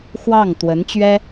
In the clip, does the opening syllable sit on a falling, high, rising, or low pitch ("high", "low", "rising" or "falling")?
falling